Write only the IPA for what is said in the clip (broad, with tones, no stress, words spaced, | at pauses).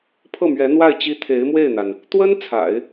pʰɤ˥˩mɥɛ˧˥n̪wa˥˩ɪ̯t͡ɕi˥ t̪ʰe˧˥ɪ̯mwe˥˩ɪ̯n̪a˩n | t̪wə˥n t͡sʰa̰˨˩˦ɪ̯